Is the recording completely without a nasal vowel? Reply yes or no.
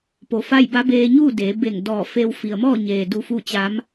yes